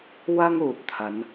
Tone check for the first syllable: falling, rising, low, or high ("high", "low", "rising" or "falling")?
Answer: high